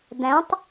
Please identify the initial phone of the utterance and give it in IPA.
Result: d̪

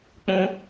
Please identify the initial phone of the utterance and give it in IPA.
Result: k͡p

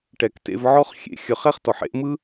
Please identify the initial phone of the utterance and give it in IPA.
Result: ʈ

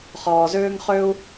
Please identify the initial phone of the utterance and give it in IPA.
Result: χ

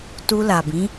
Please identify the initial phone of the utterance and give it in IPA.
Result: t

